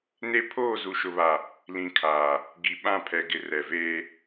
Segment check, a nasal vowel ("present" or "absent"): present